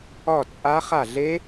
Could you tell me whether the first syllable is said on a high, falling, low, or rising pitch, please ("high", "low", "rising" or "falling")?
falling